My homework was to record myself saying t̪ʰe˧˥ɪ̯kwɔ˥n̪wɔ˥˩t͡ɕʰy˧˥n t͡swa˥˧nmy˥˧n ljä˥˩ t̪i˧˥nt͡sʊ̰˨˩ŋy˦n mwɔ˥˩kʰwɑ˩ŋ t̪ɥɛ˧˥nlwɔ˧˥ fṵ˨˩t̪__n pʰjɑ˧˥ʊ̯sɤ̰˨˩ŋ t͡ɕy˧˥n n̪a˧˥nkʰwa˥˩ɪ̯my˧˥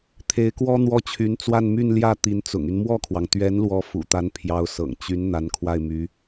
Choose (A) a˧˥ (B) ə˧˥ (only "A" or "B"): A